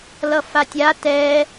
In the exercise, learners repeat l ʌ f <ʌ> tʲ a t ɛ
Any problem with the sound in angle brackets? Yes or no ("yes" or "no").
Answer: yes